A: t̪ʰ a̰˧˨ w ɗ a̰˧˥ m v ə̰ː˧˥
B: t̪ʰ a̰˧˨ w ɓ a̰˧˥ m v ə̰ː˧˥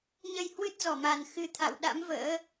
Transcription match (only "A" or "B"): A